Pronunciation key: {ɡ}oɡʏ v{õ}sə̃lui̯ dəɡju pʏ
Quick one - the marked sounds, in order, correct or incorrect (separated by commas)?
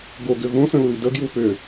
correct, correct